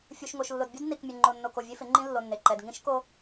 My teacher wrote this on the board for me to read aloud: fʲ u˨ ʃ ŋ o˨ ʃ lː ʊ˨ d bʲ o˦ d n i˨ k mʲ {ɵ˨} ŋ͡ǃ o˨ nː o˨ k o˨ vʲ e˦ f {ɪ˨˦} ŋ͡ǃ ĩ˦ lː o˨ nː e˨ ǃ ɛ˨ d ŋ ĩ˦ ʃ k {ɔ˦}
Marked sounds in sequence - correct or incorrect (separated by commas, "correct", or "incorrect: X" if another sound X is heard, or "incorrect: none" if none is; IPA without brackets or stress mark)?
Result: incorrect: ʊ˨, correct, incorrect: o˦